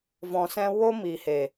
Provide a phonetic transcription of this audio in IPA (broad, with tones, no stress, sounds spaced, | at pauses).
v ɔ̃˧ s ɛ̃˦ w o˦ m iː˨ h e˨